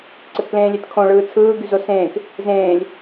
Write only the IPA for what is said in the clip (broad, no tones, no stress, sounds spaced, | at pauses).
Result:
ǀ ɘ t p l ẽː lʲ e t kʰ õ ɭ ɯː t͡sʰ ɯː ɡ y z o s ẽː k | z ẽː lʲ